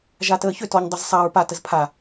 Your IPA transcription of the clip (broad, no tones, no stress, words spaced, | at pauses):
ʒatəːçʏ tɔɲ dˤəzsˤaɹ pa təzpʰa